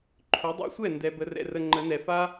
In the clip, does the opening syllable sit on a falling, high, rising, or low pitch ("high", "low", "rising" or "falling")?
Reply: rising